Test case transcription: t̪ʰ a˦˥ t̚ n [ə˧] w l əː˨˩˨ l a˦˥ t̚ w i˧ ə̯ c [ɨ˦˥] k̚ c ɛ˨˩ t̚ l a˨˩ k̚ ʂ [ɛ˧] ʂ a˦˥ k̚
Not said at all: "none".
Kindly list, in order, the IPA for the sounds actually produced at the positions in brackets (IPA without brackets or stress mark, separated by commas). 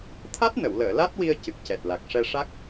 ə˨˩˨, ɨ˨˩, ɛ˧